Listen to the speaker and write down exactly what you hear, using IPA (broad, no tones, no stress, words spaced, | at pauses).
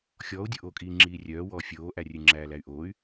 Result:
xʲɔːu̯dʲoʔoːkʼiː ŋ͡ǁiːrʲœːwɔː fʲoːʔærʲʉ ŋ͡ǁæːlæy̯ʔoːy̯